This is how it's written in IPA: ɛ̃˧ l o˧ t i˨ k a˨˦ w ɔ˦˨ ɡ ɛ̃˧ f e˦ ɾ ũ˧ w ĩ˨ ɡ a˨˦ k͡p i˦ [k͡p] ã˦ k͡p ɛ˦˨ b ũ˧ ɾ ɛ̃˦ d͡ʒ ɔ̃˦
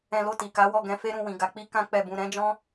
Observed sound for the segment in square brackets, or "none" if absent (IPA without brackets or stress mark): k